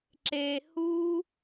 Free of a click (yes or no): no